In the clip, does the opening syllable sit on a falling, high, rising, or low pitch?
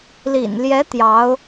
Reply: low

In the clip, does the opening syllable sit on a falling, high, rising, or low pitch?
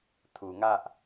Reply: low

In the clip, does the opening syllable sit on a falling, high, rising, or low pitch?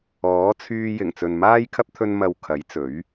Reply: rising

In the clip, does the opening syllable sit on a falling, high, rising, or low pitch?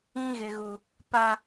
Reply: high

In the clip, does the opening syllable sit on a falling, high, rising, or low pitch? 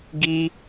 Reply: high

